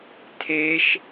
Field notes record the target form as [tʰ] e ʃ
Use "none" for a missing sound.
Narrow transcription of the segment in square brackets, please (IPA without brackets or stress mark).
tʰ